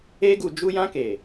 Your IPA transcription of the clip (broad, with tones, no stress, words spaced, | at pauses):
e˧ɡu˨ d͡ʒu˧jã˧ke˨